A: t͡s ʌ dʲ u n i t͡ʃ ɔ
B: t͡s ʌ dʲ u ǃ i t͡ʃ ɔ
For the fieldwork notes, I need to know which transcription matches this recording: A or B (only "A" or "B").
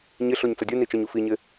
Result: A